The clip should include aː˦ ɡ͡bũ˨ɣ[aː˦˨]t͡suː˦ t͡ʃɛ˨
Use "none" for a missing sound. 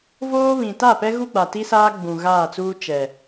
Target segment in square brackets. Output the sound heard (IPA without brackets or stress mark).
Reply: aː˦˨